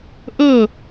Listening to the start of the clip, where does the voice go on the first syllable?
falling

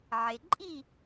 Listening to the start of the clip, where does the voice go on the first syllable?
low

